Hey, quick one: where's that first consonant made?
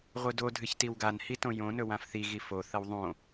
uvula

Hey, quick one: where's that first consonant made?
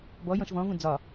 lips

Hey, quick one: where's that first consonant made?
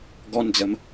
velum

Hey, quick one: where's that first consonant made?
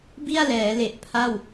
lips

